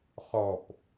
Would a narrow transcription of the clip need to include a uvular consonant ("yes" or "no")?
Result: yes